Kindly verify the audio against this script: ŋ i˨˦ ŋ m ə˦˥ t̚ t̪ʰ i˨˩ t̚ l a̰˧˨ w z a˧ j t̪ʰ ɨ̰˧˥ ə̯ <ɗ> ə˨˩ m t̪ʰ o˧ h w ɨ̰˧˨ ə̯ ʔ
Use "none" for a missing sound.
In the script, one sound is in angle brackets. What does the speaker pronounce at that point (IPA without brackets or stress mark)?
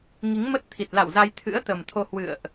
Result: t̪